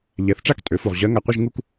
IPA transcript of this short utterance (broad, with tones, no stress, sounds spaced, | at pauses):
ʎ ɛ˩˥ θ ʈ͡ʂ a˥˧ k tʼ ø˩˥ f u˨ ʁ ʑ ɜ˧˥ ŋ a˨ qʷ ə˥˧ ʒ ŋ u˥˧ k